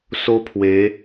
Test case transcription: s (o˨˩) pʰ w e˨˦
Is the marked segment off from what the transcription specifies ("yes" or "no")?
yes